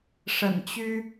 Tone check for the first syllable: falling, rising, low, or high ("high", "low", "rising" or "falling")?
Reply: low